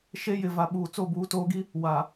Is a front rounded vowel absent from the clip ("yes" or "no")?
yes